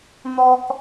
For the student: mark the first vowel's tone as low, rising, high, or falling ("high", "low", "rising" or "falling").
high